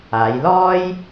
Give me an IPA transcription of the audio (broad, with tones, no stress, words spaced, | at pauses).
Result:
aː˨˧jlɔː˥j